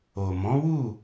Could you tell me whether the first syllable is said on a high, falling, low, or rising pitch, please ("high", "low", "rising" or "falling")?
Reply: low